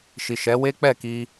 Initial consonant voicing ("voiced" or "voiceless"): voiceless